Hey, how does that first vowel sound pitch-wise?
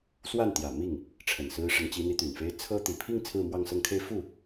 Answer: falling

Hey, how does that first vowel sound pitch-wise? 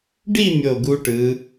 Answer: falling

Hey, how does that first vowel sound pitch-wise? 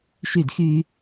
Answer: falling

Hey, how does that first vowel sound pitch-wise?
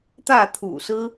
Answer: falling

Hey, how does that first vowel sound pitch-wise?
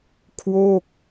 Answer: falling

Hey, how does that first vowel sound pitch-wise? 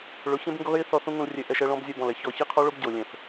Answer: rising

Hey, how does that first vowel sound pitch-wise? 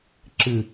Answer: low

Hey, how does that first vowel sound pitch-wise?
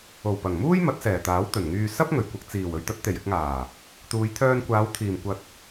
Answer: low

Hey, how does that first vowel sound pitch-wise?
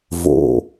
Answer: low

